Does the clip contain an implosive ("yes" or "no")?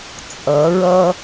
no